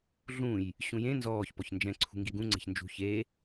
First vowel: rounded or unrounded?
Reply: rounded